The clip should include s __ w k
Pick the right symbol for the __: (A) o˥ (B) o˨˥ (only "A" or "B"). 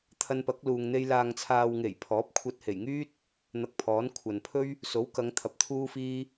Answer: B